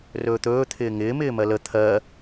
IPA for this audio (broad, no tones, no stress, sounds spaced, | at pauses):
r ɵː t̪ ɵː t̪ʰ ɪː ŋ ɪː m ɪː m ɜ l ə t̪ʰ ɜ